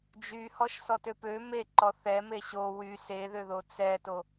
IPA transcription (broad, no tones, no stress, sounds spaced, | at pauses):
d͡ʒ y h ɔ ʃ s ɔ t ø p ø m e ǃ ɔ θ ɛ m e ɕ o w y s e ð ø ð o t͡s ɛ t o